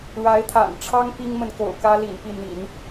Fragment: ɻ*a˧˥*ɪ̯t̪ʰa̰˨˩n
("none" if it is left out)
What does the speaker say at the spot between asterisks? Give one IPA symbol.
a˧˥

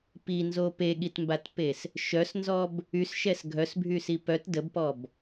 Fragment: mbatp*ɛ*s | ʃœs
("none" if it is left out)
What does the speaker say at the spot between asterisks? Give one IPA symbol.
e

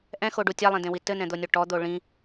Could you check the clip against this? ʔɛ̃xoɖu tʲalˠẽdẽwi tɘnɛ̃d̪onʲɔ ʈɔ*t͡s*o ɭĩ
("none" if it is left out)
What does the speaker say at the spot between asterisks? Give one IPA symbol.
d̪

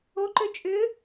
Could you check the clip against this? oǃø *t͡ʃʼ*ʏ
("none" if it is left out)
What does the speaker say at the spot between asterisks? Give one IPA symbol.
t͡ʃʼ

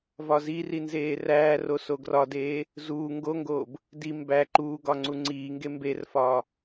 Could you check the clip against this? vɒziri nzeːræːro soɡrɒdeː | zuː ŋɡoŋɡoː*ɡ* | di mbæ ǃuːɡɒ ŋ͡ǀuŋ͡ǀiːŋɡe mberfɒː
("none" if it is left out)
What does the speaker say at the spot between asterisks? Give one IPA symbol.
b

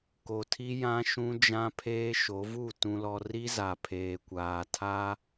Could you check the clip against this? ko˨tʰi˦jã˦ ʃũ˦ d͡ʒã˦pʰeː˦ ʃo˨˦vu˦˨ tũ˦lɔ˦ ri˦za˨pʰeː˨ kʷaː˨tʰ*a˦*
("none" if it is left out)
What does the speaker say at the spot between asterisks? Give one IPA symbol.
a˦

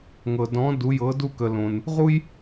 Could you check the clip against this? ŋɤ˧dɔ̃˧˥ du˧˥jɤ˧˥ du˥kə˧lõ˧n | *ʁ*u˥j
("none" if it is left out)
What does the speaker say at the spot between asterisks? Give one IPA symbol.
ʁ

